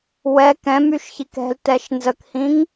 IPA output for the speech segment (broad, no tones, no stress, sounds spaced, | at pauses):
w ɛ k ɛ̃ m y ʃ ç i k ɛ̤ l t ɛ ʃ n z ə k h ĩ ŋ